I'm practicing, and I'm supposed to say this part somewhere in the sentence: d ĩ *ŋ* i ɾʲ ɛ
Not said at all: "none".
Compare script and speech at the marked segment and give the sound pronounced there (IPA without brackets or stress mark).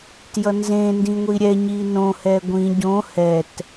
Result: ŋʷ